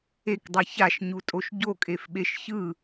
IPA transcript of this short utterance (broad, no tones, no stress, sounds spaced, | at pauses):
e k dˤ ɛ ç a ʃ ɲ u tʼ o ʃ ɟ o kʼ e f ɓ e ʃ ç ɯ